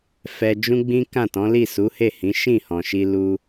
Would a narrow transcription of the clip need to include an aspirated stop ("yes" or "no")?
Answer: no